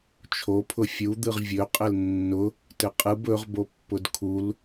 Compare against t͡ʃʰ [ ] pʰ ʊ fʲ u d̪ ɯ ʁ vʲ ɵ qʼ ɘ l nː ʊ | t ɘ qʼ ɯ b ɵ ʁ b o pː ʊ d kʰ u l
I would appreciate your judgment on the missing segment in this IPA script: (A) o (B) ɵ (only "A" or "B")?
A